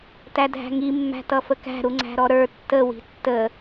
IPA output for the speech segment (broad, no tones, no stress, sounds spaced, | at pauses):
t æ dʱ æ̤ ŋ i mː æ̤ t ʌ f ə k æ̤ ɾ u ŋ͡ǀ æ̤ ɾ ɔ ɾ ə˞ tː ə w i̤ tː ə